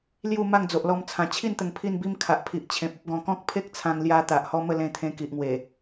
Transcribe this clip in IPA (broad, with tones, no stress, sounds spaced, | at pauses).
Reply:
l j u˥˧ m a˥˧ ŋ d͡z o˨ ʔ l ɔ˧ m t͡sʰ ã˨˩ t͡ɕʰ i˥˧ n t̪ ə˨˩ ŋ pʰ i˥˧ n b i˦ m kʰ a˨ ʔ pʰ i˨ ʔ t͡ɕʰ ẽ˨ p̚ ə˦ p̚ ɡ ɔ̃˨˩ k ɔ̃˦ k̚ pʰ e˦ k̚ t͡sʰ ã˧ ŋ l j a˧ t̪ a˨ ʔ h ɔ˦ m ə˥˧ l ẽ˧ t̪ʰ ẽ˧ k i˨ ʔ ŋ w e˨˩